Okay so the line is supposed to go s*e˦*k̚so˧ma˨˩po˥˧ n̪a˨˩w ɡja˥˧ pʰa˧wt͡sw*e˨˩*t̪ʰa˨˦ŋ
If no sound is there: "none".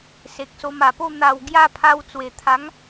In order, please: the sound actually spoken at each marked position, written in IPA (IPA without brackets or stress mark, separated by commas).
e˨, e˨˩